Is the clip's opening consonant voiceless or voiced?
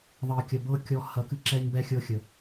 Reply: voiced